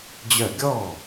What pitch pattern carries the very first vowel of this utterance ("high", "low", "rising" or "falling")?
falling